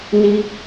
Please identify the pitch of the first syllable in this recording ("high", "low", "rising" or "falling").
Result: low